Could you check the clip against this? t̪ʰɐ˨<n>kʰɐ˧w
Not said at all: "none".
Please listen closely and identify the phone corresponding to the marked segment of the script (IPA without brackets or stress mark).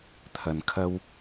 n